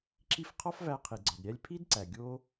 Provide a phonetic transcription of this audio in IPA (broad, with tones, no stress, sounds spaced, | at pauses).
ǁ i˦ f qʰ ɒ˦ f v æ˧ qʰ i˨ ɡ͡ǀ ɒ˨ d ɾʲ æ˦ lʲ pʰ i˦ d ǀ æ˨ ɡʲ o˦